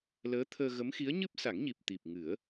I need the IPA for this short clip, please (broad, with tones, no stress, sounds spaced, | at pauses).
l əː˧˥ t̪ʰ əː˧ ɣ ə˧˥ m x i˧˥ ə̯ ɲ ɨ˦˥ p̚ s a˨˩˦ ŋ ɲ i˨˩ p̚ t̪ i˨˩ p̚ ŋ ɨ˨˩˦ ə̯